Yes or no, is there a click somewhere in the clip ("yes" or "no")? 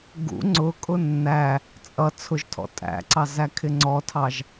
yes